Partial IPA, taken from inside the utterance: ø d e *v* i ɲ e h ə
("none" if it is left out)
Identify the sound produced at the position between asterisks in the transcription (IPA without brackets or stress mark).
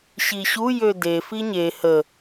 f